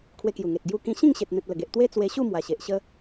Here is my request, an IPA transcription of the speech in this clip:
kʰwe˧kju˨˩ŋe˨t̚ ɡju˧kĩ˧ ɕĩ˥˧ŋɕe˨t̚ n̪ẽ˨t̚lə˨˩ɡe˨ʔ t̪we˦ t͡swe˧ɕu˥˧ mwa˨˩ɕe˨ʔ ɕə˦

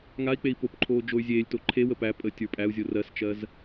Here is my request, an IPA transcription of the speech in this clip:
ŋai̯k͡pei̯ popǃʰoː d͡ʒoy̯zʲeːlʲto ǃʰewə pæ pʼə tʲə˞pʼæu̯zʲo rɜst͡ʃɜz

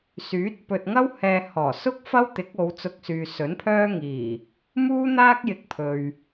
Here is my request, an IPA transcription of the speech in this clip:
syː˨˥t̚ pɵ˨t̚ŋɐ˥w hɛː˧ hɔː˨˩sʊ˥k̚ fɐ˥wt̪ɪ˨˥k̚o˨˧w t͡sʊ˧k̚syː˨sɵ˨˥npʰœː˥ ŋiː˨˩ | muː˥n̪aː˥k̚ jɪ˧k̚pʰɵ˨ɥ

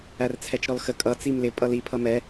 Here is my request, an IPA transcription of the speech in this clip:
ært͡sʰɛt͡ʃɾɔlxə kʼʌ t͡simlɪ pʼʌli pʰʌmɛ

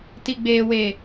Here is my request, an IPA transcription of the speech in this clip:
ti˨ɡ͡beː˨we˨

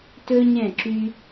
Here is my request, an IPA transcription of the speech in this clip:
tɵ˦ɲɛ̃˦˨ǁy˧

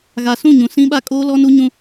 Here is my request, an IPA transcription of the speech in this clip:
ɣa˨sũ˦˨ɲũ˨ sĩ˦ɓa˦˨ kʼoː˦lɔ˦nu˦ɲũ˦

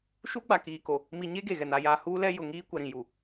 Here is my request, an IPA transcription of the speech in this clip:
ʃu˦ɡ͡ba˨kiː˨ko˨ | mi˨ɲe˦ ɡe˨ɣɛ˨n a˨jaː˨ huː˦lɛ˦ jʊ˨ ŋiː˦ kʷɛ˨ɾĩ˨ ju˨

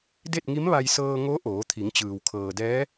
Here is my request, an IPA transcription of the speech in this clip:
de˥˨t̚ŋi˧˥mʋa˧j sɤː˧ŋo˧˥ ʔoː˩˧t̪ʰi˩˧ŋt͡ɕɯː˩w kʰɤː˩dɛː˧˥

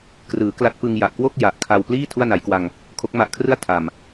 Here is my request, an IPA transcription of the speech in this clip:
krɯː˩˦kla˦˥t̚pɯ˧ŋ ja˨˩ʔkwo˥˩k̚ ja˨˩ʔkʰa˧w pliː˥˩ tʰu˥˩a̯na˩˦jkwa˧ŋ | kʰo˦˥k̚ma˦˥ʔkʰrɯ˥˩a̯ tʰa˨˩m

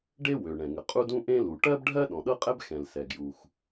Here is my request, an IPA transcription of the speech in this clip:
ɖe˥wø˩ ɳɛ̃˩ŋə˩ qʼu˥dũ˥ ʔẽ˥lu˩ ʈɜ˥bɖʱɜ˥ ɗɔ̃˩ɗɤ˥qʼɛ˥b xɛ̃˩l sɛ˩ɡju˩x

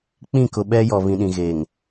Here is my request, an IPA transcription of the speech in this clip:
k͡pĩ˦˨ kʊ˨ɓɛ˦jɔ˨ βĩ˨ɗĩ˨ɣe˨ŋ

